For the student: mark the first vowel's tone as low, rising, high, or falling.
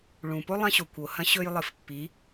low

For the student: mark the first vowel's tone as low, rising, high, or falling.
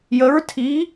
rising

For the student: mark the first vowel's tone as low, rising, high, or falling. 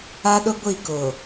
high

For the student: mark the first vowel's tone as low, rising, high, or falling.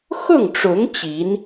falling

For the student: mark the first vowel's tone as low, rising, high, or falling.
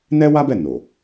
high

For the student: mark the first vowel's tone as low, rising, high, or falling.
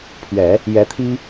low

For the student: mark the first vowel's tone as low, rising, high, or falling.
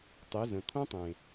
rising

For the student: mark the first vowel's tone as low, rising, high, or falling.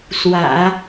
low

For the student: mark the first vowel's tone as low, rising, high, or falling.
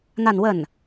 falling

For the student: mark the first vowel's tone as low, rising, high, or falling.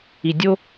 low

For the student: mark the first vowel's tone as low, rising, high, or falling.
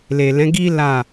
low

